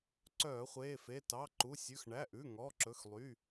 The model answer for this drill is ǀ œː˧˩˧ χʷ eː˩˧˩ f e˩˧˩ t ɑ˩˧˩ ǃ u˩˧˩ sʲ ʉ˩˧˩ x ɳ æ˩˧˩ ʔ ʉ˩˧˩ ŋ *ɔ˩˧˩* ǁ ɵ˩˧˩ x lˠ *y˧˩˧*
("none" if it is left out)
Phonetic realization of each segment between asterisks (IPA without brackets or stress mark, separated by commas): ɔ˩˧˩, y˩˧˩